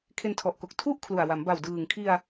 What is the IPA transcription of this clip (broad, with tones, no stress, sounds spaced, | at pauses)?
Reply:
kʰ e˧ n tʰ ɔ˨˩ ʔ k o˨˩ k̚ tʰ u˥˩ ʔ kʰ l u˨˩ a̯ w a˩˦ m b a˨˩ w d ɯː˨˩ ŋ kʰ i˧ a̯